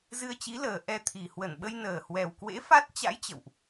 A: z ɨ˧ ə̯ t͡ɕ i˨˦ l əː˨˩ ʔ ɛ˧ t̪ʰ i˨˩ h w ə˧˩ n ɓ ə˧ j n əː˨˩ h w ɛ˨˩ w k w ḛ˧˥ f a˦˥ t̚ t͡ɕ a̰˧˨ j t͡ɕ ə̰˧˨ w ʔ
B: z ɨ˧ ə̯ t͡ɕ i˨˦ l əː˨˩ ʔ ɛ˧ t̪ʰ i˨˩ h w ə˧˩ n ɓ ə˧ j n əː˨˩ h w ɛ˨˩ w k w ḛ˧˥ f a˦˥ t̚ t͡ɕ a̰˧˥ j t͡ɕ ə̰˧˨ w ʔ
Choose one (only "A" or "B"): B